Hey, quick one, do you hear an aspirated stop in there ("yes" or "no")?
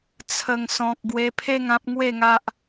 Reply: yes